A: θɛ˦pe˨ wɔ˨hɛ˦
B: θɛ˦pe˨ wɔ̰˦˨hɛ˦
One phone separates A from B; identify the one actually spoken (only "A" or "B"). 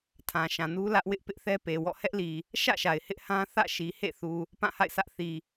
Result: B